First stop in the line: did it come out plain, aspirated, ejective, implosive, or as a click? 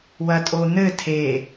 ejective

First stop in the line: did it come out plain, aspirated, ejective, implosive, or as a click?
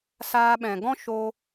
implosive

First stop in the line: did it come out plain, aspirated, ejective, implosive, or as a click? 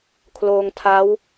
aspirated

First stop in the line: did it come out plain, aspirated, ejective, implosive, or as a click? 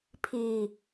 aspirated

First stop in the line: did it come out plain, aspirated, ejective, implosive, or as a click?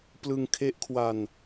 plain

